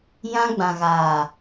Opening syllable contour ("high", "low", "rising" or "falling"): high